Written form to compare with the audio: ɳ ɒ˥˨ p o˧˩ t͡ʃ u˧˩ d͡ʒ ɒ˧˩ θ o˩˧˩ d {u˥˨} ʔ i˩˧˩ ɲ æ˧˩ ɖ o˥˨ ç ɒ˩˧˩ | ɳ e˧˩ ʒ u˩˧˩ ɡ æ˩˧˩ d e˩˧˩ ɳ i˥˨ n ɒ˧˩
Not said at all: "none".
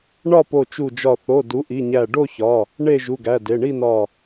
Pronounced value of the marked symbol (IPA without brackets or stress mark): u˩˥